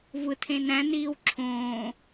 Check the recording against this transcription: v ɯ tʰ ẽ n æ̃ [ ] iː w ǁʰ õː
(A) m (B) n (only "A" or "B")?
B